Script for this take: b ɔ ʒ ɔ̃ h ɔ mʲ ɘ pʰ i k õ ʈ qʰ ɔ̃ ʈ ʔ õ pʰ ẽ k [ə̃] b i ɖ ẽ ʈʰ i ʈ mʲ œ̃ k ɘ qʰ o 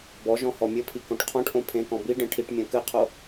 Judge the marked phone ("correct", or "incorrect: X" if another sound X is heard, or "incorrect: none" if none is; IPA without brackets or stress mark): incorrect: ɔ̃